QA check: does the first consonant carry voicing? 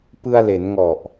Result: no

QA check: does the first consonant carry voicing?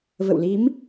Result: yes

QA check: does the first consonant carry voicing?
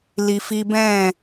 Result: yes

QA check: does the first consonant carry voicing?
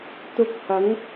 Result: no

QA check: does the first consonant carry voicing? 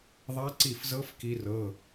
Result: yes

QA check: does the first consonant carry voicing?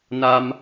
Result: yes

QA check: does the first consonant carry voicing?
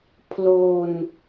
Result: no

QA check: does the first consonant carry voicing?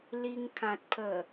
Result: yes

